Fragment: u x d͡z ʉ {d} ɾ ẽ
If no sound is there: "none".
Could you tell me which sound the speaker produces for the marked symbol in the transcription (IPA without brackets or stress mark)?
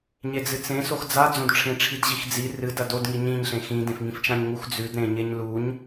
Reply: d